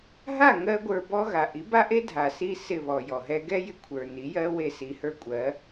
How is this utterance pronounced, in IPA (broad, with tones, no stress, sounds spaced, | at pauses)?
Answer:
ɦ a˥˩ ŋ ɜ˥ ɡʷ ə˞˧ b ɔ˥ ɣ a˩ ʔ i˩˥ b a˥ ʔ e˥ dʱ a˩ s i˧ s ɪ˥˩ β ɔ˩ j ɔ˩ ɦ ɛ˥ ɡ ɛ˥ j ɪ˧ kʷʰ ə˞˩ n i˩˥ j ɜ˥ w e˥˩ s i˧ h ə˞˥ kʷʼ ɜ˩˥